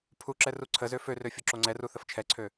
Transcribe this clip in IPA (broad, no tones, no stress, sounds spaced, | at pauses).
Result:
pʰ u ǁ ɛ r u ǀʰ ə z ø f ø r ø fʲ o ǁ o ŋ͡ǀ ɛ r u θ ə f t͡ʃʰ ɛ ǀʰ ø